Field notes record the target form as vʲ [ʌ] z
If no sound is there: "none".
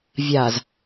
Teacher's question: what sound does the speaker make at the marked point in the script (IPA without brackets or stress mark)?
a